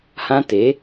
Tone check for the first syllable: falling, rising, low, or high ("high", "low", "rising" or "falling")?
high